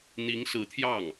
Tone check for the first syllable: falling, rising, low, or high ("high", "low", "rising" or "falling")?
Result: rising